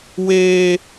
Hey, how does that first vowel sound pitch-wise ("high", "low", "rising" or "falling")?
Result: high